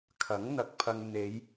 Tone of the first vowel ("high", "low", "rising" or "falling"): rising